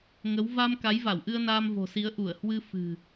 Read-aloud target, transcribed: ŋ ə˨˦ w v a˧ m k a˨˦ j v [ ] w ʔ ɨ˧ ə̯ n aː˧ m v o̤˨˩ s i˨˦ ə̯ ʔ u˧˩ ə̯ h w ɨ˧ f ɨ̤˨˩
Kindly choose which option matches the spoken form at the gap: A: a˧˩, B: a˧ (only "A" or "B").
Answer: A